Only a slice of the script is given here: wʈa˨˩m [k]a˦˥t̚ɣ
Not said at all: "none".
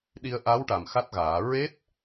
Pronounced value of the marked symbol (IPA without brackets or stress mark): x